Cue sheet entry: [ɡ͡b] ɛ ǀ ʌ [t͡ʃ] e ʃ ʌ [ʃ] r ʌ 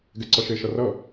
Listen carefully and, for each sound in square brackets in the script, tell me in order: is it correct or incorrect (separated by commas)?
incorrect, incorrect, incorrect